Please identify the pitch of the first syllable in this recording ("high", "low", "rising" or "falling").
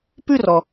falling